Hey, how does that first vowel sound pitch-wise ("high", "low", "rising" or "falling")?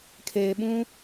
low